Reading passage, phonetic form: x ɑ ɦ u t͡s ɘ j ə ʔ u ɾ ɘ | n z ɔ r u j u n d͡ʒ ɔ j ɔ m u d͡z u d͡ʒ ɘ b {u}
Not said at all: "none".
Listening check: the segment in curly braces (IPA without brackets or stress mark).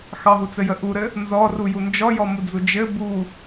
u